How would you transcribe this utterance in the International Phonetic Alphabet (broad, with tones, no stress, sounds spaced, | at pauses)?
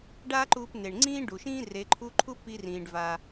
ɖ aː˥ ǃ uː˧ p n e˩ ɳ ŋ͡ǀ ĩː˥ ɖ u˩ ʃ ĩː˥ r e˩˧ ǃʰ u˧˥ ǃʰ u˥ p i˧ r ĩː˩ ɖ v a˩